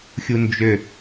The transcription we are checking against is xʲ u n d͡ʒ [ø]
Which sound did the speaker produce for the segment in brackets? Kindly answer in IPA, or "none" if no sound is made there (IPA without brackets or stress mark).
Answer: ø